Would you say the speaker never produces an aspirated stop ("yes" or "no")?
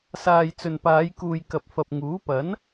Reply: yes